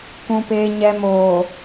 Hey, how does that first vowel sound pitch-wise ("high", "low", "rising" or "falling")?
low